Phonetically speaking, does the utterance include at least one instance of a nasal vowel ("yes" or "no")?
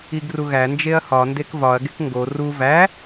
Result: no